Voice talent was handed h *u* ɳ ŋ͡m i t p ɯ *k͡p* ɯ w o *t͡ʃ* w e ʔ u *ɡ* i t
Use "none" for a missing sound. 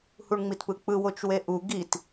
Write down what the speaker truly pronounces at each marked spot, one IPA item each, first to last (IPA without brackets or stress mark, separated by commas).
u, k͡p, t͡ʃ, ɡ